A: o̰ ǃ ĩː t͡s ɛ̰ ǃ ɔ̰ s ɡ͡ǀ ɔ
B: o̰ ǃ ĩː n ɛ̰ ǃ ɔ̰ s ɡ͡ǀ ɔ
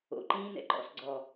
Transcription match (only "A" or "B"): B